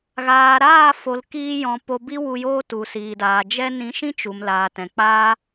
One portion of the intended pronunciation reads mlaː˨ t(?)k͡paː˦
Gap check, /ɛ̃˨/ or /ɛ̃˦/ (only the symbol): ɛ̃˨